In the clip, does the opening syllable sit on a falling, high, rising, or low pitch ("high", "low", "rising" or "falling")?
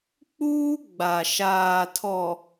high